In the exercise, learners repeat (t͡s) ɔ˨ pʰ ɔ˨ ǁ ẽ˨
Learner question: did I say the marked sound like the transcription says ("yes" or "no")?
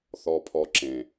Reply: no